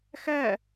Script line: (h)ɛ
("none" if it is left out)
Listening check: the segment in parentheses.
x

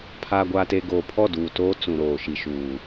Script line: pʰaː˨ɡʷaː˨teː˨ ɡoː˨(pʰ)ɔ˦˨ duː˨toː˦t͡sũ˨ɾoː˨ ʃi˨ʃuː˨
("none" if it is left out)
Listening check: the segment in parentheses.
pʰ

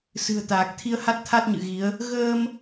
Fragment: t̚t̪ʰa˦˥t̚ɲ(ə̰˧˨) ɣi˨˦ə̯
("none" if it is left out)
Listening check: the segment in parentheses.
ɨ̰˧˨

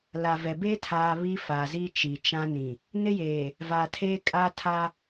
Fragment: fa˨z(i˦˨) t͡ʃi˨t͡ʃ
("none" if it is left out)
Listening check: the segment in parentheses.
i˦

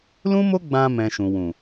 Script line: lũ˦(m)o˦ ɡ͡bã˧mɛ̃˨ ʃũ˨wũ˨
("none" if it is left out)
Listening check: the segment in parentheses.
m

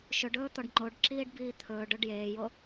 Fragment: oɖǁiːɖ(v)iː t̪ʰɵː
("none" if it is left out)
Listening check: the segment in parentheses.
b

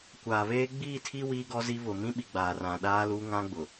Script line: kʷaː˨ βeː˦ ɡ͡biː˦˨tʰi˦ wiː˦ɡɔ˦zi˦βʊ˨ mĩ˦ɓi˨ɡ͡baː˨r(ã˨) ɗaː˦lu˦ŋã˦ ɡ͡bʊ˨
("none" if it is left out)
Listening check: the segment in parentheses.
ã˨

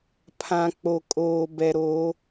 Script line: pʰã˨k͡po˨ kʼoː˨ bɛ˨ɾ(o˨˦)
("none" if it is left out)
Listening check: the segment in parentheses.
o˨˦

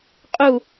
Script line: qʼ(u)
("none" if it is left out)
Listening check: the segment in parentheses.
u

